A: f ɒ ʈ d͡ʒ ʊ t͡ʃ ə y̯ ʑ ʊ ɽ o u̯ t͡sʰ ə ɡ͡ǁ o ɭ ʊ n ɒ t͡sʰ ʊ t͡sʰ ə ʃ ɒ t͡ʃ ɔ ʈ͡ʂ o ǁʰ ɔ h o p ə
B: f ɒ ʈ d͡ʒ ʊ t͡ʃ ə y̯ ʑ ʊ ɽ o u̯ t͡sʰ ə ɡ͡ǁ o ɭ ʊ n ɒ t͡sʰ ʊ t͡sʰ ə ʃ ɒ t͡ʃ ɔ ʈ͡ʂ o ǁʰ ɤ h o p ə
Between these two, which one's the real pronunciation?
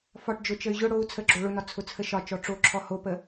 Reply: A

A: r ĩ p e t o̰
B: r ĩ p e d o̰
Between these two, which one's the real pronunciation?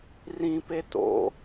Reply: A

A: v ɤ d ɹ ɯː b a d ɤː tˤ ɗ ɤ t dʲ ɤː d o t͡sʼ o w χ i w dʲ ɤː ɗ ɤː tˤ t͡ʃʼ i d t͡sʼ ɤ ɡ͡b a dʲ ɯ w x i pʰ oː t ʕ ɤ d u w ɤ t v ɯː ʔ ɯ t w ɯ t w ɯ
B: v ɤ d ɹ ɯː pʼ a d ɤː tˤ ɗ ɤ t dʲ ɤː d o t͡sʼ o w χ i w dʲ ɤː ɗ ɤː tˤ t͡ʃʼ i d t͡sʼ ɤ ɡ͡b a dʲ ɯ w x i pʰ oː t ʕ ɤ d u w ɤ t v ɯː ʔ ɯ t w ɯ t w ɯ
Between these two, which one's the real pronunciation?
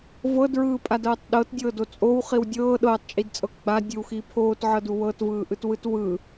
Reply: B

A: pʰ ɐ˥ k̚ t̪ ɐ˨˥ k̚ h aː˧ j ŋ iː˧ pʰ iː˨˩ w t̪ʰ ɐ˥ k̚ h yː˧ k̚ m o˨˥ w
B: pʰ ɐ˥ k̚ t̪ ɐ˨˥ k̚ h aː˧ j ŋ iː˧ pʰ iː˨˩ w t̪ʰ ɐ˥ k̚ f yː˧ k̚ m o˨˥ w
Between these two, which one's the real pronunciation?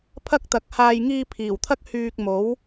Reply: A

